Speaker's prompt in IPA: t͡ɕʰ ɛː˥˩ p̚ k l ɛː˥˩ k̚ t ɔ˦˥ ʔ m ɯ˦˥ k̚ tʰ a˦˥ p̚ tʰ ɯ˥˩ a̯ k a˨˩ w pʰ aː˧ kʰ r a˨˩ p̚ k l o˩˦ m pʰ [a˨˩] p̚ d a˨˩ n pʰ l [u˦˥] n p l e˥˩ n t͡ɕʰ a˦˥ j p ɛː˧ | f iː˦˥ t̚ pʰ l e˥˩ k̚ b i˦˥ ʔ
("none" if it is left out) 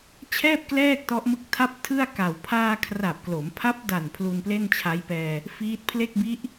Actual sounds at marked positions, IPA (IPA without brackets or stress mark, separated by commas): a˦˥, u˧